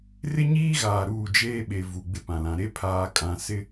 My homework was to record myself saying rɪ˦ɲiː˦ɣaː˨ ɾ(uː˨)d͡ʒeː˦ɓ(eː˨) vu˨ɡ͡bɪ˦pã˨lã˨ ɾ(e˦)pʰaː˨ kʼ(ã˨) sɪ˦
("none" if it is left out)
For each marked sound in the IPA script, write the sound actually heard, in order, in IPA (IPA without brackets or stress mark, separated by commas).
uː˦˨, e˨, e˦, ã˨